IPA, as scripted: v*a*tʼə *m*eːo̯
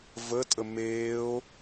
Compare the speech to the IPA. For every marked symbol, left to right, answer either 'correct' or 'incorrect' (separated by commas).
incorrect, correct